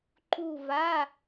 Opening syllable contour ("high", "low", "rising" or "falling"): falling